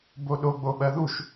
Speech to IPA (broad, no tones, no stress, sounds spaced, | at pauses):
b o ɗ o ɡ͡b o ɓ ɜ ð u ʃ